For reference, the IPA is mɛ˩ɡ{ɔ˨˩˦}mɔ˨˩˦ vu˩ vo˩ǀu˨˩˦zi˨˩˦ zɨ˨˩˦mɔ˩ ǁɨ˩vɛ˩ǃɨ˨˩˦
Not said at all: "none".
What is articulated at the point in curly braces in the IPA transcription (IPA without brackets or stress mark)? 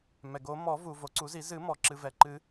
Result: o˨˩˦